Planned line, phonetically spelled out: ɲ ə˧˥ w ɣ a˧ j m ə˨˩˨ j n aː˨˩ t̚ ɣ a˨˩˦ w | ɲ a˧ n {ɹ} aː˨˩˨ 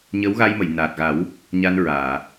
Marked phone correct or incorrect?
correct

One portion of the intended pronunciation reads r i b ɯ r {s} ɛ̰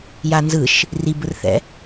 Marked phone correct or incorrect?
incorrect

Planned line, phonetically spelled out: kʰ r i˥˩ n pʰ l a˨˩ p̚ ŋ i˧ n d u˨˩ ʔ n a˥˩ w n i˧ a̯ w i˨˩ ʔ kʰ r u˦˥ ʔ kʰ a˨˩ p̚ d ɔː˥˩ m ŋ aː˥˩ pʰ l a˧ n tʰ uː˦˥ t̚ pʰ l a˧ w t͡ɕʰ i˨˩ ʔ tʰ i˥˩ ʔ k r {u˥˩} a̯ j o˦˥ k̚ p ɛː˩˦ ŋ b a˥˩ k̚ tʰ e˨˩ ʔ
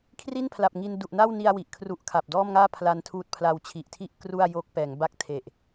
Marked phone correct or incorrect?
correct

